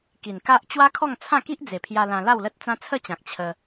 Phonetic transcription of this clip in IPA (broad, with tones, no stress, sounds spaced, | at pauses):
k i˨˩ n k a˦ ʔ t͡ɕ w a˦ kʰ ɔ˥˧ ŋ t͡sʰ ã˥˧ k i˦ ʔ d͡z e˨˩ pʰ j a˧ l ã˧ l a˥˧ w l ə˦ t̚ t͡s ã˦ t͡sʰ ə˥˧ t͡ɕ ã˨ k̚ t͡ɕʰ ə˧